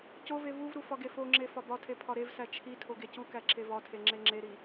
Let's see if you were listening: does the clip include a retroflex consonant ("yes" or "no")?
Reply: no